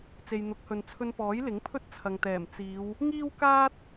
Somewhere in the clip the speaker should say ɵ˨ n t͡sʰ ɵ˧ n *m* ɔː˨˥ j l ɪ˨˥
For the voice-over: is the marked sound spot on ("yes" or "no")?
no